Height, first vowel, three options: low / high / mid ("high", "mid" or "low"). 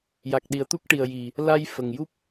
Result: low